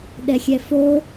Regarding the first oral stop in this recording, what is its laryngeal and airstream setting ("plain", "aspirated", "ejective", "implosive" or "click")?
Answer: implosive